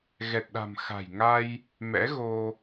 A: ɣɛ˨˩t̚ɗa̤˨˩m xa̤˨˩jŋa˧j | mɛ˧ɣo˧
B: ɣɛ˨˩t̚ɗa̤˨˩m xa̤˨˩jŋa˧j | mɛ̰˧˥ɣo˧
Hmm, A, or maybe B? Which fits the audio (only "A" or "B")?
B